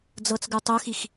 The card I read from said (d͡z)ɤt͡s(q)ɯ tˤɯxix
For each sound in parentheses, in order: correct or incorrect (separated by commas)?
correct, incorrect